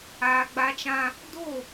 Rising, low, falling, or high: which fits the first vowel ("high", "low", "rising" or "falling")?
high